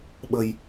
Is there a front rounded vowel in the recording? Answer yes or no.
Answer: no